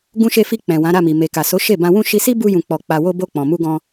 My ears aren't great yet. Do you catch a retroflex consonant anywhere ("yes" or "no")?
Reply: no